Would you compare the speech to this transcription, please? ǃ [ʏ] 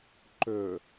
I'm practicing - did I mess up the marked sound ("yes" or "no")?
no